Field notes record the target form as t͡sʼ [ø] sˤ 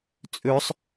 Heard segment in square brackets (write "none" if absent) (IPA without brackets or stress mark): ø